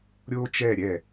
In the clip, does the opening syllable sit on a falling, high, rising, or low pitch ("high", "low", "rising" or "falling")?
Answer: high